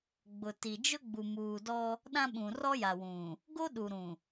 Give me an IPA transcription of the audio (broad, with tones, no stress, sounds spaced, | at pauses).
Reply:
ɡ͡b ʊ˨ t i˨ d͡ʒ ʊ˦ ɡ͡b u˨ m uː˨ d ɔ˦ | ɗ ã˦ ɓ ũ˨ r ɔ˦ j a˨ w ũ˨ | ɡ o˦ ɗ u˨ ɾ ũ˨